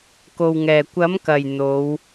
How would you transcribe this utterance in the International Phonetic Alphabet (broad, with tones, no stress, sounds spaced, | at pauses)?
k o˨ w ŋ ɛː˨˩ kʷ ɐ˨˥ m k ɐ˨˩ j n̪ o˨˧ w